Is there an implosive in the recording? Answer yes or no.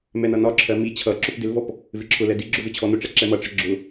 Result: no